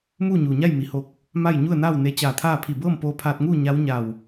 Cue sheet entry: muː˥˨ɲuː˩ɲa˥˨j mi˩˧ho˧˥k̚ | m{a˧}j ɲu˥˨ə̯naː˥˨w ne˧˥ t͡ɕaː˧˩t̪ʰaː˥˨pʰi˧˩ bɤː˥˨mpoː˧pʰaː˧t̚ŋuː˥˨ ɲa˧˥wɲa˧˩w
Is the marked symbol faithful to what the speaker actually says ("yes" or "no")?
no